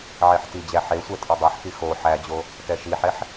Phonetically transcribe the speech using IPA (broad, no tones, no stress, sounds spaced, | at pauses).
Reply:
ʕ e ħ t i d͡ʑ æ ħ e sʷ ɛ tʼ o dˤ e ħ k i x o ħ æ d͡ʑ o | t ɛ ʃ i ħ ɛ ħ